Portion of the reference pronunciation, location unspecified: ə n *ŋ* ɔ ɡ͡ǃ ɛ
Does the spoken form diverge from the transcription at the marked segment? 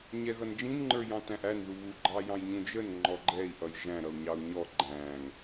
yes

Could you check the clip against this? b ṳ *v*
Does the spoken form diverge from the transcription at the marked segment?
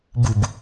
yes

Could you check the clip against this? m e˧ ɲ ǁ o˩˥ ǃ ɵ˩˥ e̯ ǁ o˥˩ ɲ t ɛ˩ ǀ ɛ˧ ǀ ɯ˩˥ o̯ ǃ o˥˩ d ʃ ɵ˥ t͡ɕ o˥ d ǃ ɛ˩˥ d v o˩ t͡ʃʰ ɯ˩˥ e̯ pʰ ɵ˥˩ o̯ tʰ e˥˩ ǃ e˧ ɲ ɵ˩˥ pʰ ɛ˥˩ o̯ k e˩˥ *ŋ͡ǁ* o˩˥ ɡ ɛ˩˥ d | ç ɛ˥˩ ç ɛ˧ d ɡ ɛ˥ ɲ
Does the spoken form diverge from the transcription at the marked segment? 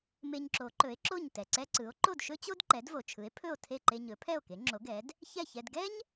no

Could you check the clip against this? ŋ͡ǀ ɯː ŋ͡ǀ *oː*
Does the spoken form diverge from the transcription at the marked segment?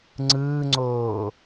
no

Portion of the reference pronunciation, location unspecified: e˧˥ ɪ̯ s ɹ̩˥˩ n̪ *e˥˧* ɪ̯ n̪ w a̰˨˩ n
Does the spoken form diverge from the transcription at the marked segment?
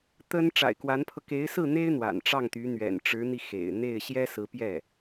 yes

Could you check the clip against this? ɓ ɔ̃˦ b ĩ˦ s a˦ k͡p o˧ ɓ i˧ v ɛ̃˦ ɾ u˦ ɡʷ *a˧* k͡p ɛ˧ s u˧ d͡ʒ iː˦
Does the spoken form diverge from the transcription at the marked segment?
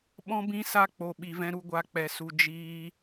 yes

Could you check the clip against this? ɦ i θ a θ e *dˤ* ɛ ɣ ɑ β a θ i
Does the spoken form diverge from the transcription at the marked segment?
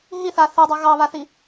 no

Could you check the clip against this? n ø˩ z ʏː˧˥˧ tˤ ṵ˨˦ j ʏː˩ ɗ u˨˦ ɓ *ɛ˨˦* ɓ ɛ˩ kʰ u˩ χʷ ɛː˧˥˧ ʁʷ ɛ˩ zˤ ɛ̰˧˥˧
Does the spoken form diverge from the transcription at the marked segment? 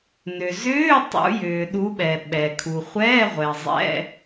yes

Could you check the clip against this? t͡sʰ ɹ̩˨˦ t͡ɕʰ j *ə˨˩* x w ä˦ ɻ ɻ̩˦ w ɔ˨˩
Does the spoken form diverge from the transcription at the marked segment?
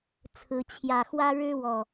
yes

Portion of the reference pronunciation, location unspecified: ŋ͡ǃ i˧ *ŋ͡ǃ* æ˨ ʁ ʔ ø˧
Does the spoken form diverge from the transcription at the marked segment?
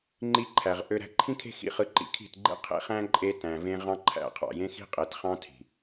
yes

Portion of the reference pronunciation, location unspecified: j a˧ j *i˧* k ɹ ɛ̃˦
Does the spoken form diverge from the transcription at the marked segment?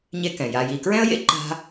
no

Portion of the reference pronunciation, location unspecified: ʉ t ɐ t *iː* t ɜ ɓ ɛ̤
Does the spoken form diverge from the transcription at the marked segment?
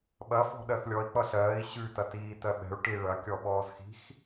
no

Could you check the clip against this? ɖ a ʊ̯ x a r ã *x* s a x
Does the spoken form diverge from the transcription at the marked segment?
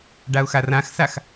no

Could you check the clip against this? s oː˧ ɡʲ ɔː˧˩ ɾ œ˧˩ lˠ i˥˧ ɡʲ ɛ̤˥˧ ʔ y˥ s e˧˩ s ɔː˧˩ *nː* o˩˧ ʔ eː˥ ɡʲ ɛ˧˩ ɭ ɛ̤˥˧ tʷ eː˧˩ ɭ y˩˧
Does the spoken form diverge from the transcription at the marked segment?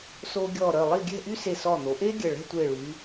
yes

